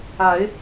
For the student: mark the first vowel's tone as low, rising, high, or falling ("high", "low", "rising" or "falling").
rising